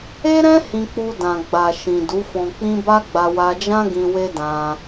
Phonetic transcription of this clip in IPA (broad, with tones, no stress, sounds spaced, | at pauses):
e˦ ɾ ɛ̃˦ h ĩ˧ k͡p u˧ d ã˨ ɡ͡b a˨ ʃ ĩ˨ d u˨˦ f ɔ̃˧ k͡p ĩ˦ b a˦ ɡ͡b a˧ w a˧ d͡ʒ ã˦ ɡ ĩ˧ w e˦ d ã˧